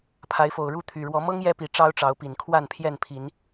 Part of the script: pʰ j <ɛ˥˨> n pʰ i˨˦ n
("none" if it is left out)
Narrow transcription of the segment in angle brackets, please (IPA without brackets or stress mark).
ɛ˥˨